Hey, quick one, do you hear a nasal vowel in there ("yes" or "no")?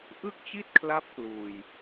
no